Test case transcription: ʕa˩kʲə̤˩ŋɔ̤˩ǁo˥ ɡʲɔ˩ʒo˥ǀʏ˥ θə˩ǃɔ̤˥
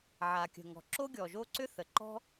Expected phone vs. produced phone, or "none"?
none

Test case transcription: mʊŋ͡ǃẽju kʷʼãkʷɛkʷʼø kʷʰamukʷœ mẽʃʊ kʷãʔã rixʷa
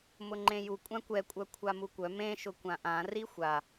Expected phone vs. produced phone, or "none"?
ø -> œ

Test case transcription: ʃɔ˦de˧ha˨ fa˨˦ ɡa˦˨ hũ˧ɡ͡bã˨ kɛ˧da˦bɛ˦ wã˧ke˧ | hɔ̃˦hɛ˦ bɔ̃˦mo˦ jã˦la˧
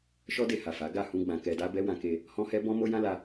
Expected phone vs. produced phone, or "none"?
none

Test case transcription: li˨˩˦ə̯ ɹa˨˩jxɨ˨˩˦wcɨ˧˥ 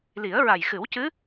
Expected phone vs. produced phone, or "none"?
none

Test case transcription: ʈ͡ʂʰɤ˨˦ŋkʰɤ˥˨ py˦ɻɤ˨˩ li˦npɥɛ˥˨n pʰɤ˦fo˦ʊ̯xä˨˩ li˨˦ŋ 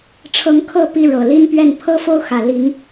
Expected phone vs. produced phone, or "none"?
y˦ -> i˦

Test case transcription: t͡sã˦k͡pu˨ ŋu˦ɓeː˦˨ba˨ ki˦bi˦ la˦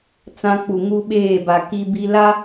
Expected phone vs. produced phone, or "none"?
none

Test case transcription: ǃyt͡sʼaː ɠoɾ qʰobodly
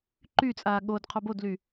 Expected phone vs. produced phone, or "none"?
ɾ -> d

